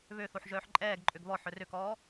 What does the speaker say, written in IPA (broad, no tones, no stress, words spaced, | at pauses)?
βøθoħ ʒœːħǃʼɛːɡǃʼøɡ βɔħœr økɔː